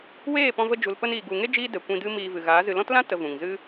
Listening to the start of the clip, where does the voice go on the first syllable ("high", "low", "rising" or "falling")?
falling